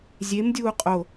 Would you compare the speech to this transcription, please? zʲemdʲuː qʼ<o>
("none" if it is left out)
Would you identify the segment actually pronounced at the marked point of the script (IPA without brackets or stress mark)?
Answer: o